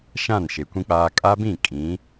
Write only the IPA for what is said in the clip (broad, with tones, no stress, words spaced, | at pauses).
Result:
ʃã˦˨nʃe˨ kʷĩ˨k͡paː˨ kʼa˦bĩ˦˨ kʼĩ˨˦